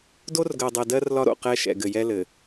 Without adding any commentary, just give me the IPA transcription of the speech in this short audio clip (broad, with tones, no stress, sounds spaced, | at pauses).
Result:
d o˦ r ɡ ɜ˨ dˤ ɛ˨ d ɜ˦ r l ɒ˦ ɾ o̰˨ q ɛ˦˨ ʃ ɛ̰˨ ɡ ɘ˨ j ɛ˦ l ɘ˨